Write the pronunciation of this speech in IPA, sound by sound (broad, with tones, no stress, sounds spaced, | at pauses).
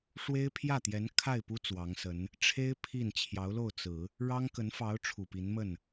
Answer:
ʂ w e˥ ɪ̯ pʰ j ä˥˩ t̪ j ɛ˧˥ n kʰ a˥˩ ɪ̯ p u˥ t͡s w ɑ˧˥ ŋ s ə˧˥ n | ʈ͡ʂʰ e˥ ɪ̯ pʰ i˥˩ n t͡ɕʰ j ɑ˧˥ ʊ̯ l o˥˩ ʊ̯ t͡s ɹ̩˨˩˦ | ɻ ɑ˥ ŋ k ə˧˥ n f ɑ˧˥ ʊ̯ ʈ͡ʂʰ u˨˩ p i˧˥ n m ə˥˩ n